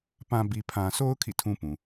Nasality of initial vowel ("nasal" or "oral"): nasal